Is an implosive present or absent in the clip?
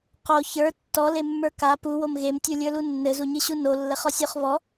absent